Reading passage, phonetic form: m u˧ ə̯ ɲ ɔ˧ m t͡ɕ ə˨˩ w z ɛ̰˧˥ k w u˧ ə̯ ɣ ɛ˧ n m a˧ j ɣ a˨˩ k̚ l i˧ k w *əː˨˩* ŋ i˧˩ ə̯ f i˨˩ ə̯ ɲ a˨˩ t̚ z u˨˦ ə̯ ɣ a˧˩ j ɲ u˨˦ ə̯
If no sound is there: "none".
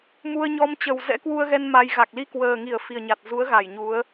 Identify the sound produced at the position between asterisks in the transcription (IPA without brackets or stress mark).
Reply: əː˨˩